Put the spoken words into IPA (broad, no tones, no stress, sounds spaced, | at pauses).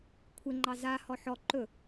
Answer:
kʷʰ ɪ ŋ͡ǃ ɑ z a h ɔ ħ ɔ ǃ ɵ